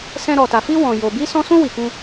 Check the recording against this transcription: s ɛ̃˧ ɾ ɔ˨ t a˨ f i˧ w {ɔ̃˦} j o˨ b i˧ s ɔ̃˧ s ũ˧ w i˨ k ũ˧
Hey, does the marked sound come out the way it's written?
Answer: no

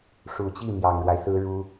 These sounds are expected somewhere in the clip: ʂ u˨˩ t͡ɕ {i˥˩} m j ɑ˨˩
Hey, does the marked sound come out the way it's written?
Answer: yes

